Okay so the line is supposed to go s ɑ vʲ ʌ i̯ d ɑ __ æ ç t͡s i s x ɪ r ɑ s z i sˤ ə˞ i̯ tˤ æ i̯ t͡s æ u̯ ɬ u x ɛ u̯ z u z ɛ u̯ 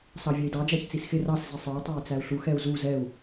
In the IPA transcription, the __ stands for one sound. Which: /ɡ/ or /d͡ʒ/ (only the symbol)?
d͡ʒ